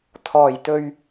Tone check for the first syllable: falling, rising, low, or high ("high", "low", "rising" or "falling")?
low